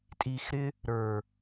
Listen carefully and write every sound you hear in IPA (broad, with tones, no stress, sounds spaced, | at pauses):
tʼ i˨ x ɾ ɪ˧ | ɾ ə˞˨